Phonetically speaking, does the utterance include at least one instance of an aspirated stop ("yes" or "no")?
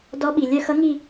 no